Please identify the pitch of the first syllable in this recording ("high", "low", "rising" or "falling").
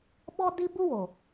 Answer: high